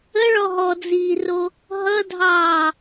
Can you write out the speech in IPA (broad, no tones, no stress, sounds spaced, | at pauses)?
ə ɭ ɔ ɦ ɔ d͡z iː r o | ɦ ʌ dʱ ɑː